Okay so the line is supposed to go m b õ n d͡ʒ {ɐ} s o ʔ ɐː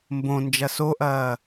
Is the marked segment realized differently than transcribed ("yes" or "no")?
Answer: no